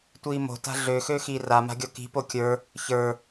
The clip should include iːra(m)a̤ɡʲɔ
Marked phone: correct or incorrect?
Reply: correct